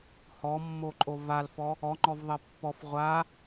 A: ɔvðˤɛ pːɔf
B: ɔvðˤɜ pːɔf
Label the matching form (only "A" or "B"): B